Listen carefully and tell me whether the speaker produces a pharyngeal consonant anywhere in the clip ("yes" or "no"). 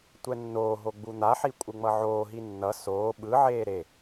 yes